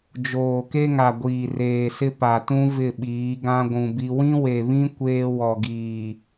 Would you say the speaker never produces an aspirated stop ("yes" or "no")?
yes